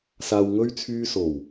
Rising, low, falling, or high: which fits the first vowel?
low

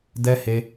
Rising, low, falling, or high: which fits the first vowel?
high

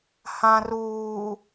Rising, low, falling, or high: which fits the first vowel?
low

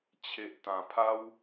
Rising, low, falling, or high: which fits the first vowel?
low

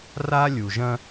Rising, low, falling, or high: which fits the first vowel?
high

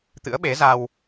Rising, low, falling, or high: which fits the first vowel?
rising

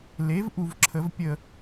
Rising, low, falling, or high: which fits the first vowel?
rising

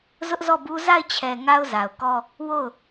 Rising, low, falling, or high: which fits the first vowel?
high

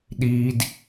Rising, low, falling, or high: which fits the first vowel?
low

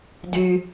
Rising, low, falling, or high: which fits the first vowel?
low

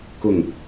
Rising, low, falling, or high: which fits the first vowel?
falling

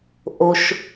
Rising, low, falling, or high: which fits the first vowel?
low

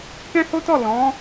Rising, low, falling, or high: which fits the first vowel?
high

